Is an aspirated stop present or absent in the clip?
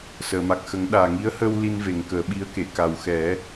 absent